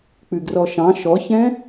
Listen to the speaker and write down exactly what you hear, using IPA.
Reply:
k͡pʉɡrɔʃɑ̃ ʃɔçɛ̃

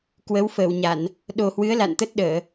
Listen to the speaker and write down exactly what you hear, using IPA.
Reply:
kwə˨˦wfəː˧˩wɲa˧˩˨n | ɗo˨˩hwɨ˨˦ə̯ la̰˧˨nt̪ə˦˥t̚ɗəː˧˩˨

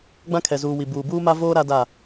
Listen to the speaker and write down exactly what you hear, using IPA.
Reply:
ɡ͡bã˦kʰɛ˨zuː˨ wi˨buː˨ buː˦ma˦voː˦ ɾa˦da˦˨

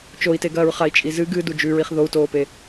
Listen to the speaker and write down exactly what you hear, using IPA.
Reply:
t͡ʃoi̯teɡɐːɹ χai̯t͡ʃʼizɨ ɡɨ dud͡ʒʉɹiχ ðou̯toːpe

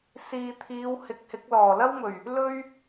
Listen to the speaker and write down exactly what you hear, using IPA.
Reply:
siː˨t̪ʰiː˨˧w hɪ˨˥k̚hɪ˨˥k̚ lɔː˨˩lɐ˥wmɵ˨˩ɥ | lɵ˥ɥ

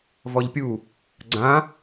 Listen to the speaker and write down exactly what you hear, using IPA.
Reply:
vɔʎpʲu | ɡ͡ǀã

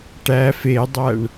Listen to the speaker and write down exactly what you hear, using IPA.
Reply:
ʈæf edˤæɳ

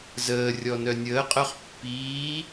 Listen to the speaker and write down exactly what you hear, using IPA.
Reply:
zəːrʲɔnœ nʲəːqʼœχ pːiː

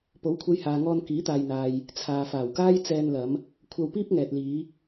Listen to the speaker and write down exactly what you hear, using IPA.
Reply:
po˨˥wkʷʰɐ˧jhaː˨ŋɔː˧n kiː˨˥t̪aː˨jn̪aː˨j | t͡sʰaː˨faː˨˩wkaː˥j t͡sɛː˧nlɐ˨˧m | kʷʰɐ˧wpiː˥p̚ŋɛː˨t̚liː˨˧

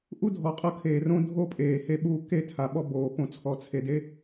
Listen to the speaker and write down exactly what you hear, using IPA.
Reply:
ʔu˦dʱɔ˨qʼɤ˧ kʰeː˨rõ˦ dʱo˦pʼeː˨ he˧ɓuː˧ ke˦˨tʰa˨ɓɔ˧ boː˨põ˧ t͡sʰɔ˨t͡sʰe˨de˦

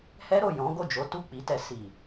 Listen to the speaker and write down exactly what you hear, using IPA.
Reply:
hɛ˦ɾo˦˨ jɔ̃˨˦ɡo˦˨d͡ʒo˨˦ tu˦˨k͡pi˨˦tɛ˧ si˨

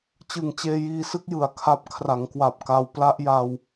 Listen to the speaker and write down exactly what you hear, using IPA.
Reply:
t͡ɕɯ˨˩ŋt͡ɕeː˧jiː˧sɯ˦˥k̚ jɯ˨˩a̯kʰa˦˥p̚ kʰra˩˦ŋkwa˨˩p̚ka˧w pla˦˥ʔja˧w

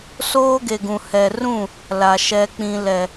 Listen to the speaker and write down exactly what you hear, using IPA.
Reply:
soː˦ɡe˨ɡũ˨ hɛ˨rũ˦˨ | la˨ ʃɛ˨ k͡pĩ˨lɛ˨

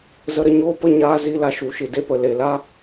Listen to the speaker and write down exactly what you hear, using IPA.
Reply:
zə˧ɾə˧ɲoː˦ pə˦˨ɲaː˧zi˧la˧ ʃu˨ʃɨ˨ de˧pə˨le˨la˦

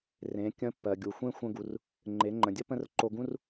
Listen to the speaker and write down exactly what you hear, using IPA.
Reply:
rẽ˩˧ kʲə̃˧˥ pːɜ˩ɡʲu˩xʷẽ˥ xʷə̃˧ɡu˩r | ŋ͡ǃe˩˧ŋ͡ǃə̃˩dʲə˥ pə̃˥rǃo˧ɡũ˥r

